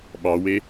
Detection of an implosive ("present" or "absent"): present